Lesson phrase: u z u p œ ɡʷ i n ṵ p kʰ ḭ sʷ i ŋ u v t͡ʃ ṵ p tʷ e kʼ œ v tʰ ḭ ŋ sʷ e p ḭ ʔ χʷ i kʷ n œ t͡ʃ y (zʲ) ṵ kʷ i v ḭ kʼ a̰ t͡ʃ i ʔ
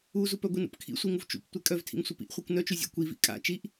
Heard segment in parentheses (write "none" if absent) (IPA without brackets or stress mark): zʲ